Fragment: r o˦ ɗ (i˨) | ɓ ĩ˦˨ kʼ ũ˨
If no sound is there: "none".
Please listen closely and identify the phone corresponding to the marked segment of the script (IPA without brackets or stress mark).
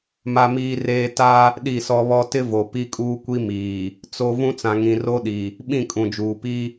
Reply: i˨